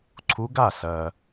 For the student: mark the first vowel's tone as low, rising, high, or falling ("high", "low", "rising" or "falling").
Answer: rising